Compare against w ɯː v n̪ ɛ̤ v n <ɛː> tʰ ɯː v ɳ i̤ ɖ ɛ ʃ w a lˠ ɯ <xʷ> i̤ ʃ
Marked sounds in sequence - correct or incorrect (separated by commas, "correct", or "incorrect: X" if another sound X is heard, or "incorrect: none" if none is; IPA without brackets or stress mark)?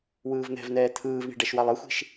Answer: correct, correct